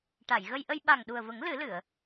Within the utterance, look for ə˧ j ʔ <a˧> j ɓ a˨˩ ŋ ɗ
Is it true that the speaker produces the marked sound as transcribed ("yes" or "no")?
no